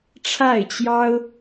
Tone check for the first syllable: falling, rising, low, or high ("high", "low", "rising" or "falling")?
falling